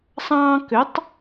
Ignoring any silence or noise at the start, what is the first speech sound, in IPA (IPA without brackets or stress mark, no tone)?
sˤ